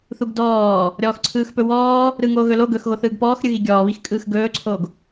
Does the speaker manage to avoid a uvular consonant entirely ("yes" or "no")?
yes